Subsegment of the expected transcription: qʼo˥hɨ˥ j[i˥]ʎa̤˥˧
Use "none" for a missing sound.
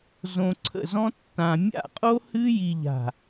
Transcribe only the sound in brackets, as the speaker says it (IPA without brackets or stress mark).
i˥